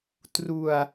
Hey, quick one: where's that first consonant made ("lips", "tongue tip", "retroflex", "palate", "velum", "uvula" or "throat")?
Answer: tongue tip